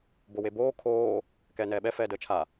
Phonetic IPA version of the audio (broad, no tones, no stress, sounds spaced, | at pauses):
b o w e b oː kʰ oː | k ɛː n ɛː ɓ ɛ f ɛː d əː t͡ʃʰ a